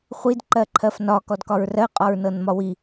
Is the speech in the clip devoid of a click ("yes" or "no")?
no